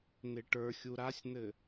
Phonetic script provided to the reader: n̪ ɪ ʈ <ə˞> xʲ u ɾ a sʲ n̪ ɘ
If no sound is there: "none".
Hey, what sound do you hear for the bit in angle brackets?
ə˞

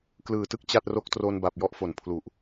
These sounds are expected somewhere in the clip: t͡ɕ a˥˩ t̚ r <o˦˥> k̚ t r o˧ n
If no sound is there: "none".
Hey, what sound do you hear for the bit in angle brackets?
o˦˥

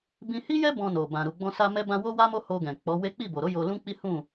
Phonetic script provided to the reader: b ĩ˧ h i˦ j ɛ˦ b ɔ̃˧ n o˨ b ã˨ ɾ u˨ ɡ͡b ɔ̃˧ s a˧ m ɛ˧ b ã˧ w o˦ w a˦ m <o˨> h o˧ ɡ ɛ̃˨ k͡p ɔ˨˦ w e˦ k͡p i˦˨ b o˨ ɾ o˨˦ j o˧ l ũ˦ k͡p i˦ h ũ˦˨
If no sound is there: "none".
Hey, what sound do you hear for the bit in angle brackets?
o˦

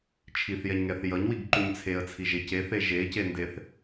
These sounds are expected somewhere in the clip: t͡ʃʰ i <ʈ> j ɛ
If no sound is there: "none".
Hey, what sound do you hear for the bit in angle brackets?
θ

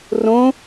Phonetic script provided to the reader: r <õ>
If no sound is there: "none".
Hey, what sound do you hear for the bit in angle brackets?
õ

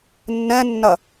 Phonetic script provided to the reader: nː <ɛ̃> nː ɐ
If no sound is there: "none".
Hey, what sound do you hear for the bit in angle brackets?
ɛ̃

